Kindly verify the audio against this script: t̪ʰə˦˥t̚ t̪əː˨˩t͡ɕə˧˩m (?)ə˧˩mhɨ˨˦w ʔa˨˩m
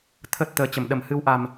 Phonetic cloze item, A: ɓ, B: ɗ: B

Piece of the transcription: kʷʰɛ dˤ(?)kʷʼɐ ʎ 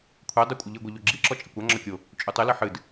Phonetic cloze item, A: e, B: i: B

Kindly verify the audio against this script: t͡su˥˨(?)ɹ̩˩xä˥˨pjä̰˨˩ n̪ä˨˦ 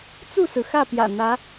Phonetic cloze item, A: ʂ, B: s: B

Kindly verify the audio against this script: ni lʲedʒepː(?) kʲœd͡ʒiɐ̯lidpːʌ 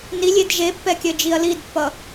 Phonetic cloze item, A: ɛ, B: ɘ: A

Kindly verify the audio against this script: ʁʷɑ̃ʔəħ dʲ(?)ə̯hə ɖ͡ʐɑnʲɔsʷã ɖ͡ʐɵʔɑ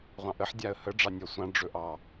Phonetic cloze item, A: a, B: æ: A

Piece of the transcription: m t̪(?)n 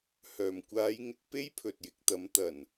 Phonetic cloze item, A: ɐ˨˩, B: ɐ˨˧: A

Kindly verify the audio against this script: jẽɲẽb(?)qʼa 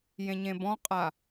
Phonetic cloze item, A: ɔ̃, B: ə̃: A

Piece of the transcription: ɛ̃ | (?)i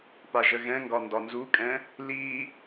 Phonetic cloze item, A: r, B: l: B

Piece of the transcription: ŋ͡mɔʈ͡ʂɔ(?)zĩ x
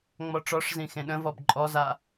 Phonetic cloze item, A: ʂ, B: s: A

